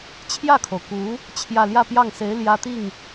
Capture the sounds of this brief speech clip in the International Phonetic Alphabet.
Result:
t͡ɕʰjä˥˩kʰo˩ʊ̯ku˧˥ | t͡ɕʰjä˥˧ ljä˥˧pjɑ˥˩ŋse˧˥ɪ̯ ljä˥t̪i˥˩ŋ

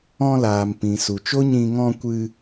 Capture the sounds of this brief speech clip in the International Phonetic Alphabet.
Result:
ɔ̃˧laː˨m pĩ˨su˨t͡ʃo˦ɲĩ˧ ŋɔ̃˧kʷɨ˧

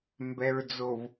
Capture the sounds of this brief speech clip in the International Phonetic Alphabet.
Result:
mbɛ˨ɹd͡zo˨v

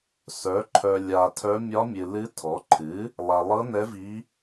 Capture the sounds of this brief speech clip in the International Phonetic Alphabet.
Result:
sœ˩˥ǃʰœ˨ lʲa˨tʰœ˧˥ mʲɒ˧˥mʲɨ˨lɨ˧˥tʰɔ˩˥ ǃʰɨ˩˥ | lˠa˨lˠɤ˧˥nɛ˧˥vi˧˥

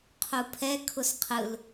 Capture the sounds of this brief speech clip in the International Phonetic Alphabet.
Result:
qʰupʰɛ kʰʊsqʰɯl

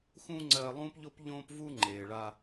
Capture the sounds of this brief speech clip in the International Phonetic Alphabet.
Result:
xũː˦ŋ͡ǀɜː˧lˠũː˦pʎo˦p ʎõː˦pvu˦ ŋ͡ǃeː˨ɭa˧

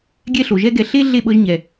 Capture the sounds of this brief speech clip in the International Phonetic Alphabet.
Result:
ɡʲɛ˦ɬo˨ ʒɛ˦ɡɛ˧ ɬe˦ ɮe˦˨ɓɤ˧ʒ ɲɛ˨

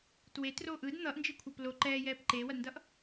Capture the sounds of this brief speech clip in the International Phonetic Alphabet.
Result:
twetroːʔ ɯd n̪ʌʔnd͡ʒikʷʰʌp lo ǃɛːjɛːp ǃeːwʌdndʌʔ

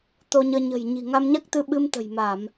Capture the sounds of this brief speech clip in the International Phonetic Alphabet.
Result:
t̪o˧ɲəː˧ ɲə̤˨˩jɲi̤˨˩ ŋa˧mɲa˦˥k̚t̪ɨ˧ ɓɨ˧mt̪ə̤˨˩jma˧˩˨m

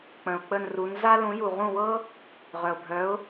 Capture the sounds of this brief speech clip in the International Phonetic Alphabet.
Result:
k͡pə̃˩ʊ̯k͡pə˧˩nru˩˧n za˥ lũ˩˥ju˩ʁũ˥˩wɤ˥ | ʁœ˩ʊ̯bʱœ˩˥ʊ̯

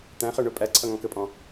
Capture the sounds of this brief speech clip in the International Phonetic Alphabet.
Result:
t̪æ̃χə˞ ɳʊ pʼæǀʰʌŋɔ̃ kəpʼɔ̃

